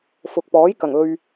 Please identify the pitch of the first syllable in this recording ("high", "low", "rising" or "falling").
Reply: low